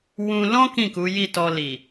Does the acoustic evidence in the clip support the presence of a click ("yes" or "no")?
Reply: no